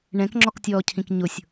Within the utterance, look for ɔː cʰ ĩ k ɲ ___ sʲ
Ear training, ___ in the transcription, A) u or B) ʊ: B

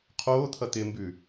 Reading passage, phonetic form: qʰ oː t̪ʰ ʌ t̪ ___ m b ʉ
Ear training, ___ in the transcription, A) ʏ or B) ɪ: B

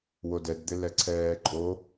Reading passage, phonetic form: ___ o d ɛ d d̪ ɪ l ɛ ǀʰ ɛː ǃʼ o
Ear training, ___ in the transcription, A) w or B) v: A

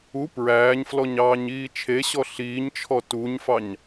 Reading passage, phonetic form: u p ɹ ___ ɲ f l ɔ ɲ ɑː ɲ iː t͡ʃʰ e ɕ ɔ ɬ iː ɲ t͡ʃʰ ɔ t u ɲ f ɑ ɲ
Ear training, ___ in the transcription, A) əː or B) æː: B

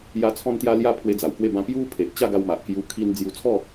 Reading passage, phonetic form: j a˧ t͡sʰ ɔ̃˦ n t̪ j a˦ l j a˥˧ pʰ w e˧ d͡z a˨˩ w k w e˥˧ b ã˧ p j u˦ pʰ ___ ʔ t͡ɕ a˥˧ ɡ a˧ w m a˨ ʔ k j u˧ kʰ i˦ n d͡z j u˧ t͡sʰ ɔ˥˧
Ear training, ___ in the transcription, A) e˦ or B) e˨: B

